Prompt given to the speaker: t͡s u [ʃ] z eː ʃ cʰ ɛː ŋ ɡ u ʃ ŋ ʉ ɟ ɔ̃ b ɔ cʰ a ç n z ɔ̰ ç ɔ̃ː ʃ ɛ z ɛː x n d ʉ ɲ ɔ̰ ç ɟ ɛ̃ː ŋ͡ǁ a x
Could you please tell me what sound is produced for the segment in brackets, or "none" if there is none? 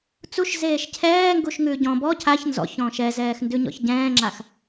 ʃ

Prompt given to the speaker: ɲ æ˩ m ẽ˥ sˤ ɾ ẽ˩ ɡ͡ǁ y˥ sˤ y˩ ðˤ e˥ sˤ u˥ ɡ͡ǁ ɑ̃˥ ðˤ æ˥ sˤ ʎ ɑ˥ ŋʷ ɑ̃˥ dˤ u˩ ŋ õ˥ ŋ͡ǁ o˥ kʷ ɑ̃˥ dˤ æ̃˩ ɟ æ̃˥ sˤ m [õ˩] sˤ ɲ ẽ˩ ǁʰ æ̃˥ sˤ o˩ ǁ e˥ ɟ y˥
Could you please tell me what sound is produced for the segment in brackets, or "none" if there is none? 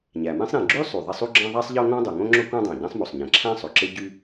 o˩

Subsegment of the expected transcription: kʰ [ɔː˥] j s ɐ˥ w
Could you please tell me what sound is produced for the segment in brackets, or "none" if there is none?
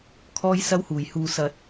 ɔː˥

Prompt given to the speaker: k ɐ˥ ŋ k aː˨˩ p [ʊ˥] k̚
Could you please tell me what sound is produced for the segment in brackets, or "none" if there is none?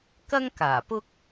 ʊ˥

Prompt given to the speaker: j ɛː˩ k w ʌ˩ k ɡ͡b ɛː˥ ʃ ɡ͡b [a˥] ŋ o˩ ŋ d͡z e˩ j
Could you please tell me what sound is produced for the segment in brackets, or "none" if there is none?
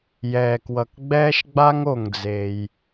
a˥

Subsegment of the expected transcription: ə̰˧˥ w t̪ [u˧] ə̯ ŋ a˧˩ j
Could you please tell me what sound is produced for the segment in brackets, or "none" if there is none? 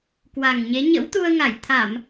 u˧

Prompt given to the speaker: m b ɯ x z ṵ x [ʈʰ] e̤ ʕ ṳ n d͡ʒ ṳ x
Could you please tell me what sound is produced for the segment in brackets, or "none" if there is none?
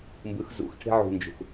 ʈʰ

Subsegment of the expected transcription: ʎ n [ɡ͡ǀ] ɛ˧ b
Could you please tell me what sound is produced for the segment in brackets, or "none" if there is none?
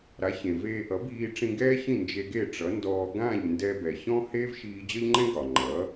d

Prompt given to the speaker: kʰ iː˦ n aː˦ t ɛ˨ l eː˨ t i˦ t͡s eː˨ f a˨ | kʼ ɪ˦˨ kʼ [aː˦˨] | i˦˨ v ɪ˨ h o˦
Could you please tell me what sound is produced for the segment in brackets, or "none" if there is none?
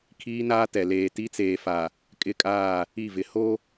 aː˦˨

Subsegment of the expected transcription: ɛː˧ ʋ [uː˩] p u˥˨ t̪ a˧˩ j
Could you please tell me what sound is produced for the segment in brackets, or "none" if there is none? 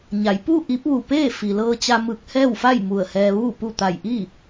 uː˥˨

